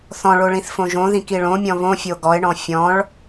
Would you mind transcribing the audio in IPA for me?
θɔ̃ɭoɭĩθfõ ʒõðĩ kiɭõmʲɔ̃ βõ fʲoɡɔɪ̯ɳɔ̃ fʲɔ̃ɭ

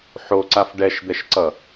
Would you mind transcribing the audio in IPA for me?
ħoǀaf ɖɛʃd̪ɛʃǀʌ

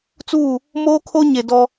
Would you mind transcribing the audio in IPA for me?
t͡suː˦˨ | moː˦kʰo˦ɲe˨ dɔ˦

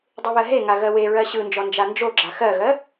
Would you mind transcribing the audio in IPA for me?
dˤɯβɜɦeŋa ɣɜweɹɜ ɕɯnd͡ʒɔ nd͡ʒand͡ʒoɡ͡ǁa xɜɣɜ

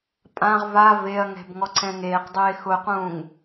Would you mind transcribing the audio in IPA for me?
pʼãʁ va veɐ̯ŋɛ̤b ŋɔǀʰɛ̃ŋeːqdˤeː xʊqũːŋ

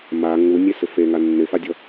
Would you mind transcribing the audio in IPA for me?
ma ŋunʲesɪ feŋa nːɪfadʲɔ

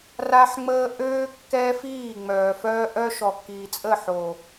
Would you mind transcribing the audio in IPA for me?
ra˦ħŋ͡məː˦ ʔøː˦ kːɛ˦fiː˦˨ ŋ͡mœː˨fœː˦ ʔœ˦ʃɔ˨ kːiː˨t͡sʼə˦˨ħo˨

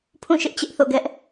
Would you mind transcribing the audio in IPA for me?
pʰũ˦˨ʃɪ˦ʔ t͡ɕɪ˦ʔθo̰˦˨ ɡɛ˦ʔ

